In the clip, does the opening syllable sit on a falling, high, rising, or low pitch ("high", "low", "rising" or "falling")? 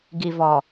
low